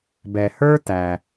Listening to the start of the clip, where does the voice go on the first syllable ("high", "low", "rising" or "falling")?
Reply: low